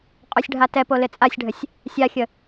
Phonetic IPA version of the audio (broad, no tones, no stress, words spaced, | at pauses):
qʼosʲɖʱatɛpo lɪt͡sʼasʲɖʱəsʲ | sʲaxʲə